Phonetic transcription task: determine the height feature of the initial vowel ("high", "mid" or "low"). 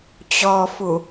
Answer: mid